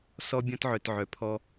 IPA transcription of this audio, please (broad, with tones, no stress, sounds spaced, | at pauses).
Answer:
s ɔ˥ bʲ ɔ̃˥ t ʕ œ˧ t ʕ œ˧ pʰ ɔ˥